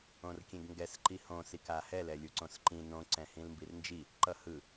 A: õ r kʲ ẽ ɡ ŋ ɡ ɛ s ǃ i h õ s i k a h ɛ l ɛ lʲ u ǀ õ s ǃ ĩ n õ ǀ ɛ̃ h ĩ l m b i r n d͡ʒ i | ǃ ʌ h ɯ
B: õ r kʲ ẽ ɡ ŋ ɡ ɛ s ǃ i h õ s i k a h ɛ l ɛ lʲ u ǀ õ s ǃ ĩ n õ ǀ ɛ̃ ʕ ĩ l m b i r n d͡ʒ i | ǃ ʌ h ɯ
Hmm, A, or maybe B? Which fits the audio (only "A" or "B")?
A